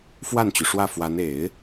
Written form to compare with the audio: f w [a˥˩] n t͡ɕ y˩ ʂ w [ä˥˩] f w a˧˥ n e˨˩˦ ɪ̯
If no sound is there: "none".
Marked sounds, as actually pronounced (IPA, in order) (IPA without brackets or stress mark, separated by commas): a˥˩, ä˥˩